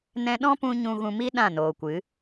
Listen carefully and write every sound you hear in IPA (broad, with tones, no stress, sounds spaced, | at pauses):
n ɛ̃˧ ɗ ɔ̃˦ p ũ˧ ɲ ũ˧ ɣ ũ˧ m i˦ ɗ ã˦˨ n oː˨ kʷ ɨ˨˦